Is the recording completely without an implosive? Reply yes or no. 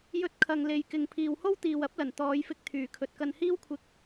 yes